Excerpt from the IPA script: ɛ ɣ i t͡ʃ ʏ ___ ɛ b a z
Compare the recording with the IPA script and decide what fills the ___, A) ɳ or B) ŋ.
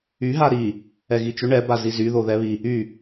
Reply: A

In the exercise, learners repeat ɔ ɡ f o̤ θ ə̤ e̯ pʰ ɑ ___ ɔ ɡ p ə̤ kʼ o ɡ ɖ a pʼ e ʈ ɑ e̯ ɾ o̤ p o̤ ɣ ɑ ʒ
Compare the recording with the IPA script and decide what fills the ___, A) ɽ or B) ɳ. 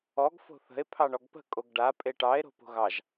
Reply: B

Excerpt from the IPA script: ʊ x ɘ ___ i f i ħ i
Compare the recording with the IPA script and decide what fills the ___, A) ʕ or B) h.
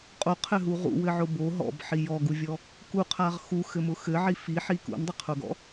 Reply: A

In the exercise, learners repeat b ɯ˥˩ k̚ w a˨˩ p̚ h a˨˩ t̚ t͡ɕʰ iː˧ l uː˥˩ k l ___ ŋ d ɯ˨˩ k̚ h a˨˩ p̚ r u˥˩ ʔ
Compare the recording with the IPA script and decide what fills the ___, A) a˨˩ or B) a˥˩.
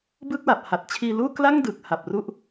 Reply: B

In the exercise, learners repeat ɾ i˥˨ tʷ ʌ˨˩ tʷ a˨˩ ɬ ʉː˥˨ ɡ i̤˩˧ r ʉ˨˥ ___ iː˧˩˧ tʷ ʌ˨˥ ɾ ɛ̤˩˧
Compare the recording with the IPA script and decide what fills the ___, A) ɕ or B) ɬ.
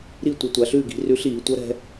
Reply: B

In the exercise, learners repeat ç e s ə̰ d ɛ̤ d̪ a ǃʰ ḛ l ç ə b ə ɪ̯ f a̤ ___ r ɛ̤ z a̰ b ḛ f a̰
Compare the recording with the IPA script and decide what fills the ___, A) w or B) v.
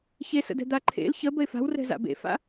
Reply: A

